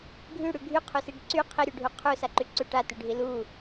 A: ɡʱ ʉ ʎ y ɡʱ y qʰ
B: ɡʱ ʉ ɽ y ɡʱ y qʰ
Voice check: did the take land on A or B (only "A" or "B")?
B